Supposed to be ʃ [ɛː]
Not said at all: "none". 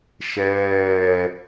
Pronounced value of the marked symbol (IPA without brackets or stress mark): ɛː